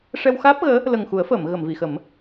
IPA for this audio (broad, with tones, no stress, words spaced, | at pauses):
ʂɛ˧w xaː˦˥p̚ɣəː˧˥ | lə˨˩ŋxu˨˩˦ə̯fəː˨˩˨m ɣə˨˩˨mvi˨˩˨xə˨˩˦m